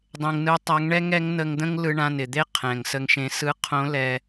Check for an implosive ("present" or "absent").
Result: absent